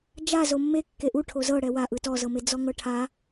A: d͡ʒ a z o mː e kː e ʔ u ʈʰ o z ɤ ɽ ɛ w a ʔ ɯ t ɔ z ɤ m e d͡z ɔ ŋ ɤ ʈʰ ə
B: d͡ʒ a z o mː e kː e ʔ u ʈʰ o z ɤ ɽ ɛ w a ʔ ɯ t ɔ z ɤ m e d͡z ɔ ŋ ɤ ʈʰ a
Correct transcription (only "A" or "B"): B